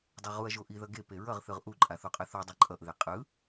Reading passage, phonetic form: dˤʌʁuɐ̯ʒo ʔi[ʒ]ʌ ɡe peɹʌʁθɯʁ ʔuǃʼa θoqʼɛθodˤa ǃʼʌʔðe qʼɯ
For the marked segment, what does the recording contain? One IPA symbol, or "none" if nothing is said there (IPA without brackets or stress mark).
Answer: ð